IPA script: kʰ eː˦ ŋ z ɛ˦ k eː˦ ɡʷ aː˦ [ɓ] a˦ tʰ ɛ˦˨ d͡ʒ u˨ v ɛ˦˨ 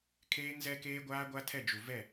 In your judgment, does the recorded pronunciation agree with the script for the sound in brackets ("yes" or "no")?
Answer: no